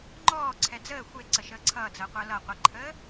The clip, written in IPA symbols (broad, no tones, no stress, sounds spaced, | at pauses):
ŋ͡ǃ ɔː ǀʰ ɛ d͡z əː xʷ e ǀ ə ʃ əː ǀʰ ʌː d͡z əː qʷ əː l ʌ qʷ ə ǃʰ əː